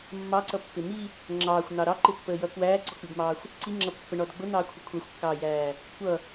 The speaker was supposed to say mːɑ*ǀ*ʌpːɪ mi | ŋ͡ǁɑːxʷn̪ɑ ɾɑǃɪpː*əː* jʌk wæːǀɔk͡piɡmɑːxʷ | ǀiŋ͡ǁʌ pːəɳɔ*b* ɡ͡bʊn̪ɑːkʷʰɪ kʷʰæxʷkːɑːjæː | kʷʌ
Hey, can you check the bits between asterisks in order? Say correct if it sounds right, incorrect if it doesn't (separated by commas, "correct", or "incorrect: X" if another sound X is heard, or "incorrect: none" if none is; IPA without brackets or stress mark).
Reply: correct, correct, incorrect: d